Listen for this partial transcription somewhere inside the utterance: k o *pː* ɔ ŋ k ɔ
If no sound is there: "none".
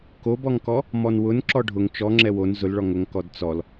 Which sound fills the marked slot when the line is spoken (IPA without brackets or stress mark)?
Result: b